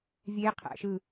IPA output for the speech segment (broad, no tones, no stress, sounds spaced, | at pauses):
vʲ e qʰ æ̰ ʃ ɯ